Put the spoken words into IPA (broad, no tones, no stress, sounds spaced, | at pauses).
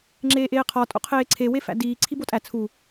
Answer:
ŋ͡ǁ eː ʔ eː qʰ ɒ tʼ o̰ qʰ eː ǀʰ e w e f æ̰ d iː ǀʰ i b o tʼ æ t͡sʰ u